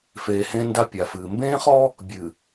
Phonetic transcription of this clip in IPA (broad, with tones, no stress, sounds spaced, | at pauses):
f eː˨ h ẽ˦ n d a˦ pʲ a˨ f ɨː˨ m b ẽː˦ χ ɔ˦ | bʲ ɨ˨